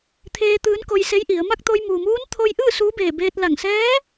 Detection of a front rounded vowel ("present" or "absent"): absent